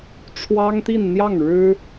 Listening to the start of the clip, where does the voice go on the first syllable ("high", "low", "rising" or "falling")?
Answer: high